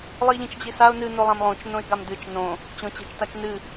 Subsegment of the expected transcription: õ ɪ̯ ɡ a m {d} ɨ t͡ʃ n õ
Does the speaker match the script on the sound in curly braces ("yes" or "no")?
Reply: yes